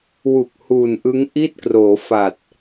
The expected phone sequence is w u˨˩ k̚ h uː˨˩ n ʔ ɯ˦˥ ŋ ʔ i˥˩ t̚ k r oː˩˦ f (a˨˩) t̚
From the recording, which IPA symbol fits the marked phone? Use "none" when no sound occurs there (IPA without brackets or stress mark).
a˨˩